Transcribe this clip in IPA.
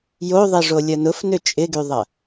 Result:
j o ðˤ i ʐ o lʲ ɐ n ʊ f n ʏ t͡ʃʼ ɪ ɡ y ðˤ ɐ

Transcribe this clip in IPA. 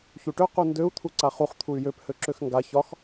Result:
ç u ʈ ø q u n d ø u̯ t̪ʰ u ǀ a χ u χ t̪ʰ u y̯ j ø p h ø ǁ ø x ŋ ɡ a ç ɒ x

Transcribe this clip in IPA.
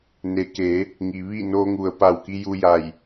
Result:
n e˩˧ k e˩˧ | ŋ i˩ ʋ i˥˨ n oː˧ ŋ u˩ ə̯ p a˧˩ w k i˧ j uː˧ j a˧˩ j

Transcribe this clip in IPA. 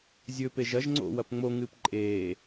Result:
zʲ ɵ p e ʒ ɐ ʒ ŋ͡ǀ o̰ w ɐ p ŋ͡m o ŋ ɨː p ǃʼ eː

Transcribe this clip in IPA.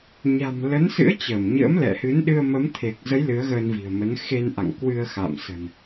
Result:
ɲ a̤˨˩ m l ə˨˦ n s ɨ̰˧˥ ə̯ t͡ɕ əː˧˩ m ɲ ə̰ː˧˥ m l ɛ̰˧˨ h ɨ˨˦ n ɗ ɨ˧ ə̯ m ə˨˦ m t̪ʰ e˨˩ k̚ z ə˨˦ j l ɨ˨˦ ə̯ ɣ əː˧ n v i̤˨˩ ə̯ m ə˨˦ n x e˧ n ʔ a̰˧˨ ŋ k w ɨ˧ ə̯ x a̰˧˨ m s ə̤˨˩ n

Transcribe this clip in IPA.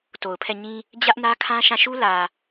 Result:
t o˨ ʊ̯ pʰ ɛ˦˨ ɲ ĩ˦ | d͡ʑ ä˦ ʔ n ä˦ kʰ ã˦ ʃ ã˦˨ ʃ u˦ l ä˨

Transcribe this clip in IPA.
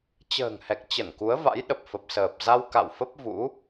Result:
t͡ɕ ə̤ː˨˩ ŋ h ɛ˨˩ k̚ t͡ɕ ə˧˩ n k u˨˦ ə̯ v a̰˧˥ j ɗ ə˨˩ p̚ f ə˨˩ p̚ s əː˨˩ p̚ z a˧ w k a̰˧˨ w f ə˦˥ p̚ v ṵ˧˥

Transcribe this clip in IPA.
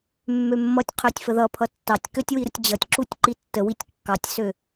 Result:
mː ø mː ʌ tʲ qʰ ø tʲ f ə ð ʌ pʰ ʌ tː ɑ tʲ k ø tʲ w i ɾ ə tʲ d͡ʑ ʌ tʲ ǁ u tʲ ǃ i tː ə w i tʲ kː ɑ tʲ s ø

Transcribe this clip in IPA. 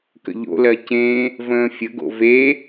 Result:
k ə̰ ʎ o̰ l ɜ c ẽ | v ə̃ː fʲ ə ɡ o̰ v e

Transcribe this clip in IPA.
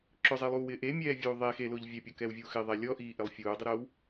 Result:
ǁ ʊ zˤ i lˠ uː w ɪː ʔ e mʲ ɛː vʲ uː ðˤ e x e l ʊː ʎ vʲ ɛ pʲ ɔ k ɛː w vʲ uː x ɪ ðˤ ɛ lʲ ɔ ʔ iː ʔ ɪ lˠ fʲ uː dˤ ɪ ɾ oː w

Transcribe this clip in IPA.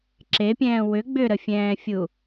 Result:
ǁ e pʲ ɛ̃ː w ʏ ɡ͡b ʏ ɾ ə fʲ ɛ̃ː fʲ u

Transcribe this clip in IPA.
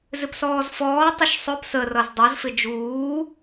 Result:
z ɪ p s ɔː z f ɔː tˤ ɪ ʃ sˤ ʊ p s ə r ʌ z dˤ ʌ z f ɪ d͡ʒ uː

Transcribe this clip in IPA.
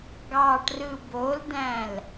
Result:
ɡ ɑ ʈ r ɯ b o l d æ̃ l

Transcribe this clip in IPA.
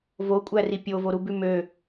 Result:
v o kʷʼ æ r i pʲ o v o ɾ u b ʉ m ø

